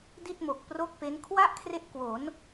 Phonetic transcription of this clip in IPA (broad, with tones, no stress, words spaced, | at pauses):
di˥˩t̚ mo˨˩k̚pro˥˩k̚pe˦˥n kʰwa˥˩ʔkʰre˦˥ʔ kwo˩˦n